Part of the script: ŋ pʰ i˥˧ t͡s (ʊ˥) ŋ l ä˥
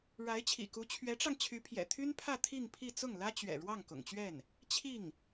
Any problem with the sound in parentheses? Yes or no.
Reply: yes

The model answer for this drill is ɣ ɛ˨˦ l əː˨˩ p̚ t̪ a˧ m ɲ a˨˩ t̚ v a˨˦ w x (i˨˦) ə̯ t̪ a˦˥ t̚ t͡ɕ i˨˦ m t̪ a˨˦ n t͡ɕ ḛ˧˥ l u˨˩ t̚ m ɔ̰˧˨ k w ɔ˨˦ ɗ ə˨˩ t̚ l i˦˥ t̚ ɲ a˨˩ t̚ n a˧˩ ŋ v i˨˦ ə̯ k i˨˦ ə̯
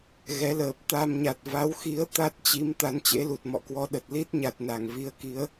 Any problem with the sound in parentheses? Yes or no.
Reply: no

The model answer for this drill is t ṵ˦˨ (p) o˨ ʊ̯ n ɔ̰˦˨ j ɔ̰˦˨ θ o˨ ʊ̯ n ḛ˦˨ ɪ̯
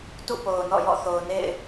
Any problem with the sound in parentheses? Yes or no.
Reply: no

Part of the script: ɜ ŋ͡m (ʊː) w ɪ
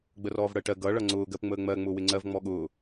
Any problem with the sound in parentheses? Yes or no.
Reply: no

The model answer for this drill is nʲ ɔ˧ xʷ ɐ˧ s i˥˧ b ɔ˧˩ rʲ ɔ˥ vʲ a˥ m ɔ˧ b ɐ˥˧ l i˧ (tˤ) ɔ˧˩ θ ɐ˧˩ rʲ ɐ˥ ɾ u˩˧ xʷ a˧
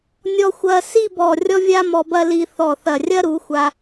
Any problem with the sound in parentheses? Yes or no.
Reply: yes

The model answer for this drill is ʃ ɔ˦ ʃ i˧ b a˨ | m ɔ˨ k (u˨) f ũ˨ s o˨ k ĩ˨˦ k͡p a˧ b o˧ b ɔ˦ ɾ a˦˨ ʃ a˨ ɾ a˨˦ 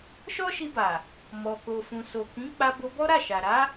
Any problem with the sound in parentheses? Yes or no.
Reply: yes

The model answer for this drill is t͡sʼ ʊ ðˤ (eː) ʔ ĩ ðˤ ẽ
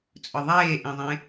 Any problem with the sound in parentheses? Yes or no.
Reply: no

